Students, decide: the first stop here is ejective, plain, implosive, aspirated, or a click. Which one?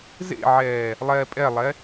ejective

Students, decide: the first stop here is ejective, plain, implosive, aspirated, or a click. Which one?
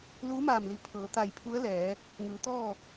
aspirated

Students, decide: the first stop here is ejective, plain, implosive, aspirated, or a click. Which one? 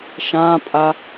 ejective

